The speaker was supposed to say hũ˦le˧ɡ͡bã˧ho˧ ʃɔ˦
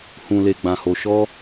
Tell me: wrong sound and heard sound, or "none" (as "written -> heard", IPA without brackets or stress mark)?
ũ˦ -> ũ˧